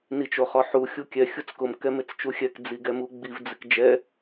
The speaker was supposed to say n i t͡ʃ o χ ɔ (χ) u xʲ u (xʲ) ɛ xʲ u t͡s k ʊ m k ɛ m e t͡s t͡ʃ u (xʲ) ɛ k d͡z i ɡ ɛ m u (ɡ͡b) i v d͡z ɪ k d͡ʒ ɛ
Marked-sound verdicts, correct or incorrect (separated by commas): incorrect, incorrect, correct, correct